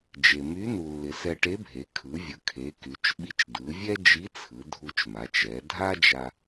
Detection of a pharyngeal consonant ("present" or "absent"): absent